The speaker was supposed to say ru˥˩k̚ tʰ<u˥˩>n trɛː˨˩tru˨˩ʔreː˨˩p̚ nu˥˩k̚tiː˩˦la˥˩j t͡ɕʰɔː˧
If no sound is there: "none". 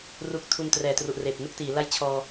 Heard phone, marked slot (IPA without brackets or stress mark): u˧